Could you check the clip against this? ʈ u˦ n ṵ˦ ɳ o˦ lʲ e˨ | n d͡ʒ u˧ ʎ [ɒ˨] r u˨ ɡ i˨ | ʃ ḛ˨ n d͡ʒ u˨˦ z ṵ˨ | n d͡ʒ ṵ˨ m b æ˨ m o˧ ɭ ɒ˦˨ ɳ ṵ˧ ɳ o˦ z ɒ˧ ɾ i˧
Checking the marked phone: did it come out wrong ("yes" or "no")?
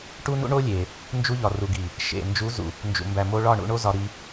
no